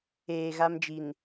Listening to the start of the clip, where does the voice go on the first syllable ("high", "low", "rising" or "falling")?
low